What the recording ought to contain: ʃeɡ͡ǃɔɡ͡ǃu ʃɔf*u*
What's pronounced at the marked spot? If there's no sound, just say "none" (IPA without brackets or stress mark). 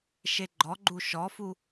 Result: u